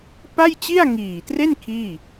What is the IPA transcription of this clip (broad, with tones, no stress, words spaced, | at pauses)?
pa˥˩jt͡ɕi˥˩a̯ŋiː˨˩tre˥˩n kʰiː˥˩